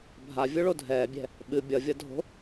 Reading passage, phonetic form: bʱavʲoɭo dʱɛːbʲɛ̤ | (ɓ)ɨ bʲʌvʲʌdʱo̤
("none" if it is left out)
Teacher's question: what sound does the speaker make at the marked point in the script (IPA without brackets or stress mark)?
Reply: ɓ